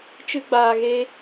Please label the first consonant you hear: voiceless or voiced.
voiceless